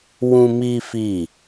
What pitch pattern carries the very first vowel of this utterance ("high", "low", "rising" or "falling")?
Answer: high